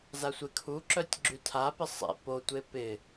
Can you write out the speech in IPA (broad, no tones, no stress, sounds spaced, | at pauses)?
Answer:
z a sʷ ɪ kʰ u ǁ œ tʲ ɡ͡ǁ y tʰ a p ɪ sˤ ḛ p o tʷ e p ɪ